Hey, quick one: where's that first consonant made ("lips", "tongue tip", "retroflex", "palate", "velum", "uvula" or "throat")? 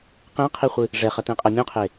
uvula